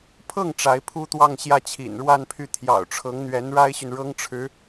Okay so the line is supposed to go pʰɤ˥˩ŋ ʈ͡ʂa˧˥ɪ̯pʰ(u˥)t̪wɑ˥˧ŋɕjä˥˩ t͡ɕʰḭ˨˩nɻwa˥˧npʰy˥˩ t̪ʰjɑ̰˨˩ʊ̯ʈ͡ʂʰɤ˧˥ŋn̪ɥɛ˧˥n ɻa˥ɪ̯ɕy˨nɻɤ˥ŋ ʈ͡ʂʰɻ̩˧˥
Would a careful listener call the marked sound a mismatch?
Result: no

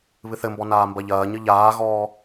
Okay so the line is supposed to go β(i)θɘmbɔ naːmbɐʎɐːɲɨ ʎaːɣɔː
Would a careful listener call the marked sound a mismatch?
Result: yes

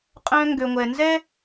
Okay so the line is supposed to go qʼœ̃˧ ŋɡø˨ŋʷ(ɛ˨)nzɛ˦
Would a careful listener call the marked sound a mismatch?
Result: no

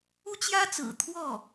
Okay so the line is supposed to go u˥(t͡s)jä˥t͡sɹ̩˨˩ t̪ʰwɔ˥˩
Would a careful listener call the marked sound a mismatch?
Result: yes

